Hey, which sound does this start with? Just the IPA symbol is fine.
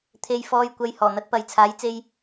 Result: t̪ʰ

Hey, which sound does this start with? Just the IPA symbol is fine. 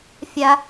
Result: fʲ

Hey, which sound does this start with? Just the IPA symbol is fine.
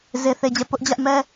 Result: z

